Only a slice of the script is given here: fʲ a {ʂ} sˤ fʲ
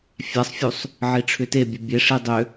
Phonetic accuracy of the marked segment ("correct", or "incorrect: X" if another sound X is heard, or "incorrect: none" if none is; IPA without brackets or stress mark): incorrect: none